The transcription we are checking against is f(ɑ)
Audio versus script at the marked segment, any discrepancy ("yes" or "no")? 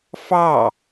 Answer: no